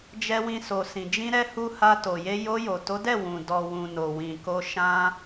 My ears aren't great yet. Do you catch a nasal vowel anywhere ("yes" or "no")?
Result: yes